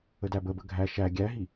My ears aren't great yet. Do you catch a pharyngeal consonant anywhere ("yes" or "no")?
no